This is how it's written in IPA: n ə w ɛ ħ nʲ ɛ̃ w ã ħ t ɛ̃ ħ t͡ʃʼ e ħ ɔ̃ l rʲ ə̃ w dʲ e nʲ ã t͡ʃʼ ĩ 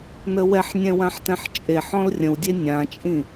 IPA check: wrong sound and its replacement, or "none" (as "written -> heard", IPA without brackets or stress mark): none